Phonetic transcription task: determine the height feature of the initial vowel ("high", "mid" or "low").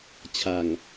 low